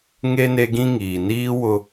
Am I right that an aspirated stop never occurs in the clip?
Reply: yes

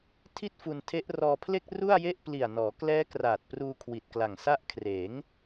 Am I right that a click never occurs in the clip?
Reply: yes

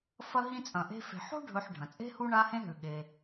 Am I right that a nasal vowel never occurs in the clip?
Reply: no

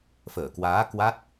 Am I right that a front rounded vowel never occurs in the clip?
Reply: yes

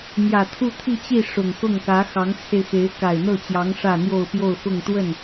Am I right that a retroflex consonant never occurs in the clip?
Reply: no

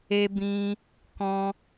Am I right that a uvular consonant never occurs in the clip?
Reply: yes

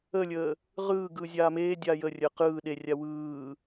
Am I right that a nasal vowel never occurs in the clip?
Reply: yes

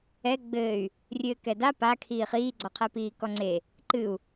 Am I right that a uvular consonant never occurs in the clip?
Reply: no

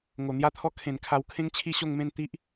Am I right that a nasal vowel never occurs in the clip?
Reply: no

